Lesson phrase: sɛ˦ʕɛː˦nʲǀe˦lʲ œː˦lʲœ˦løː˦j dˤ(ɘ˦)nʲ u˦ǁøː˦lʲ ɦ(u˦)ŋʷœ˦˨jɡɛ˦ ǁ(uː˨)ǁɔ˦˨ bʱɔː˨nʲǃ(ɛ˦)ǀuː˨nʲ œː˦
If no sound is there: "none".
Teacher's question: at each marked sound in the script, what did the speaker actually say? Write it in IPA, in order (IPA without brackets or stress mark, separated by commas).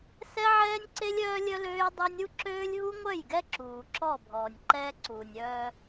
ø˦, u˦, uː˨, ɛː˦